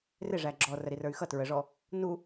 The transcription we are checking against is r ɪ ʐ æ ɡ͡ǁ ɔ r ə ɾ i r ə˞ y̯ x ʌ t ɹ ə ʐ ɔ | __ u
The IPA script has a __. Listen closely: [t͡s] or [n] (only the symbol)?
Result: n